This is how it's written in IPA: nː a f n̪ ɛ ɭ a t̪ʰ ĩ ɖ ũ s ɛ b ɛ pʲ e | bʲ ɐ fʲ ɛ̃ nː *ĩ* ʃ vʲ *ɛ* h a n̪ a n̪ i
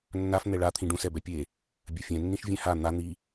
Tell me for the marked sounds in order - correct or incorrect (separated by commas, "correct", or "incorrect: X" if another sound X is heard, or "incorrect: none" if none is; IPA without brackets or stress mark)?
correct, incorrect: ɛ̃